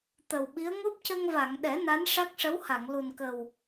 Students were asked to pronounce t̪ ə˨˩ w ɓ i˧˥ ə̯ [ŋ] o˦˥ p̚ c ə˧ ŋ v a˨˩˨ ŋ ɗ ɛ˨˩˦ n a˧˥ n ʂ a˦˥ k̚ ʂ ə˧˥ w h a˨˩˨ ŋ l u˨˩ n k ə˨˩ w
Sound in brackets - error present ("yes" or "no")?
no